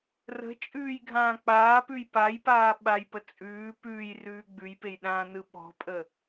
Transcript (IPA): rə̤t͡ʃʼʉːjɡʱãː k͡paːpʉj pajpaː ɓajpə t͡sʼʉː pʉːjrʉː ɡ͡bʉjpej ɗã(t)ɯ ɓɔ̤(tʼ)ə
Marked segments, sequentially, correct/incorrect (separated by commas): incorrect, incorrect